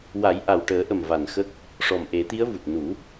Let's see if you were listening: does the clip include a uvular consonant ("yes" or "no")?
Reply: no